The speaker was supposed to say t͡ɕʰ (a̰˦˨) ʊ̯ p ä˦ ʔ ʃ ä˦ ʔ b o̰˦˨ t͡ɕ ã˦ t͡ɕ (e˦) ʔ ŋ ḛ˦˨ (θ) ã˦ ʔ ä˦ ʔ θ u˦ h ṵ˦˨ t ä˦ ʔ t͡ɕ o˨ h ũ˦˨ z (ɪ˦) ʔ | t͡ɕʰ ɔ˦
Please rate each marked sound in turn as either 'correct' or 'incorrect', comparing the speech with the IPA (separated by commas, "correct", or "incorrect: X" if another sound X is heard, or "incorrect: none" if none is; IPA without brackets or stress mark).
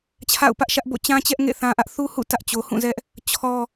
correct, incorrect: ɛ˦, correct, incorrect: ɛ˦